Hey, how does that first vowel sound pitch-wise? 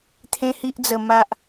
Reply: high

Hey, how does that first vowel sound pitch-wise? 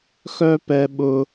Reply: high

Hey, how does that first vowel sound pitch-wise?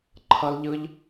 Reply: high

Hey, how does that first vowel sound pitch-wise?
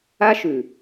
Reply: high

